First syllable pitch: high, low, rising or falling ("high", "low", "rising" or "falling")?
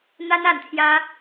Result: high